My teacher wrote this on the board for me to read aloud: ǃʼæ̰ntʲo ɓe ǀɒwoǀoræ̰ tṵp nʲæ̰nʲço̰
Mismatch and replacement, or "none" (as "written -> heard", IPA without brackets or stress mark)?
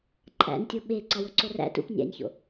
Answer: none